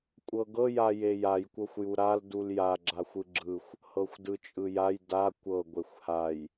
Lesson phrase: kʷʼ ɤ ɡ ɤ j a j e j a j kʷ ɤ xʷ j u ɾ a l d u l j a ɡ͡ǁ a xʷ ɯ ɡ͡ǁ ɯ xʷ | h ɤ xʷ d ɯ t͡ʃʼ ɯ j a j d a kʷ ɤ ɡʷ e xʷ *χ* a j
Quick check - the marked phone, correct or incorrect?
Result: incorrect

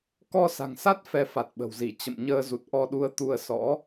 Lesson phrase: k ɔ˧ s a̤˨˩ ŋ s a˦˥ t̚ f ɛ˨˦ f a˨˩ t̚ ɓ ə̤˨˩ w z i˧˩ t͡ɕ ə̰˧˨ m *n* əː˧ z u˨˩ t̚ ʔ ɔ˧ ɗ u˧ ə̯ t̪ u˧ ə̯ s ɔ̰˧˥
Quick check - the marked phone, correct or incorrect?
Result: incorrect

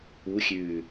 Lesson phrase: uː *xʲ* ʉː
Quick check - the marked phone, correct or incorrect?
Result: correct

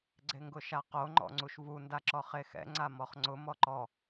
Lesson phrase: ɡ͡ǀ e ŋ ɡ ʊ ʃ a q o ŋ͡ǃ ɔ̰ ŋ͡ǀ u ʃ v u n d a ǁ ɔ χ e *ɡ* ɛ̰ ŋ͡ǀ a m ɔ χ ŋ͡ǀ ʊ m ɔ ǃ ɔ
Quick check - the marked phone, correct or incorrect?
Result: incorrect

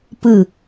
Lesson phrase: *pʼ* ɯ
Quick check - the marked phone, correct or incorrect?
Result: incorrect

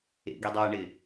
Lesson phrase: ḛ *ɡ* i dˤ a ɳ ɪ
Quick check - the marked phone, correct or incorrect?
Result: correct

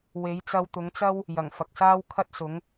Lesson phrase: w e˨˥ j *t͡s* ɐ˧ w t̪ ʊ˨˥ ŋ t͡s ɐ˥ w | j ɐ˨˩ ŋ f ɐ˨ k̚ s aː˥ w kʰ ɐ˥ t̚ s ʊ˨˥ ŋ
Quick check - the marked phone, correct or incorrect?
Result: correct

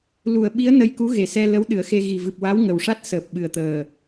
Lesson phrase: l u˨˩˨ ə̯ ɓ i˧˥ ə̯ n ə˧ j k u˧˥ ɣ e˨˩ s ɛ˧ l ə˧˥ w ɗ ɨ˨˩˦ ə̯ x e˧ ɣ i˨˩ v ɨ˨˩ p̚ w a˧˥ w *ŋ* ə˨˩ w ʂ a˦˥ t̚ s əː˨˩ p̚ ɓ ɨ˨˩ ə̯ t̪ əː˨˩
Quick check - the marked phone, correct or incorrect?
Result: correct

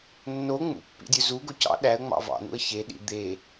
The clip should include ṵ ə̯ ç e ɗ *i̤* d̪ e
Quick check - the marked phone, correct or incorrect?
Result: incorrect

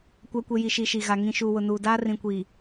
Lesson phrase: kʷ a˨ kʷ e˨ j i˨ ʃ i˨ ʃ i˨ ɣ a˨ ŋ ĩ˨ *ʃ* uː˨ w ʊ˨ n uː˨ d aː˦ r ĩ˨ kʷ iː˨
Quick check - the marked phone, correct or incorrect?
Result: correct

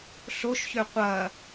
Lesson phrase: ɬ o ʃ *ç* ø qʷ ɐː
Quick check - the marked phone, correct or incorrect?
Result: correct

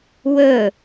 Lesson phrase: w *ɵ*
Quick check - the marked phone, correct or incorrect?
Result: correct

